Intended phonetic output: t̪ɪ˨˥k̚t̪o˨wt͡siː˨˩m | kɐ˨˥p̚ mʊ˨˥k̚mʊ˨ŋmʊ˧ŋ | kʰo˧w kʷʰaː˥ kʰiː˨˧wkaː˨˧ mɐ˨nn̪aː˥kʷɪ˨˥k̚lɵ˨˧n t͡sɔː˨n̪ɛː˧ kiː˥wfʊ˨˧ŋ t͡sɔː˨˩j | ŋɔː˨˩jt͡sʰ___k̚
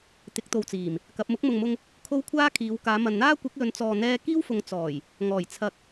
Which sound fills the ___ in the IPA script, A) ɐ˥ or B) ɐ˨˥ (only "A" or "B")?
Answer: B